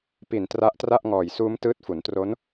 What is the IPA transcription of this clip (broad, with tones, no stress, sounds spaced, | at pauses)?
p i˨˩ n t r a˦˥ ʔ t r a˥˩ ʔ ŋ ɔː˨˩ j s uː˦˥ m t ɯː˦˥ t̚ f u˩˦ n t r o˦˥ n